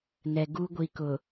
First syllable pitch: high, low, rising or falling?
low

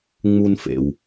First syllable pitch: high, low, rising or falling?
high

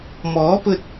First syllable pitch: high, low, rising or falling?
rising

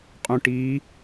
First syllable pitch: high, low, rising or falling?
low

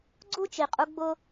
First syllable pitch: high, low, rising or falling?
high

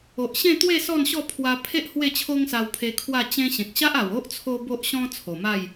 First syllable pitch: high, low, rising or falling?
low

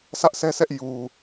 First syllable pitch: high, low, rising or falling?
high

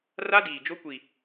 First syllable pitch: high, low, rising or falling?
high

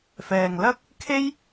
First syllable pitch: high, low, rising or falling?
low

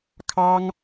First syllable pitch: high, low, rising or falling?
high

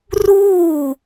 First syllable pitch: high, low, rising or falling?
falling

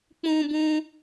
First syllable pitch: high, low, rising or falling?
high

